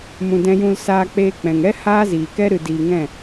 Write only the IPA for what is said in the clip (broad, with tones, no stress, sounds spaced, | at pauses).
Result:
m ũ˨ d ɛ̃˧ j ũ˧ l s aː˧ k͡p eː˧ k͡p ɛ̃˨ ŋ ɛ˦ h aː˦ z iː˨ k ɛ˦ ɾ ɨ˧ d iː˧ ŋ ɛ̃˦˨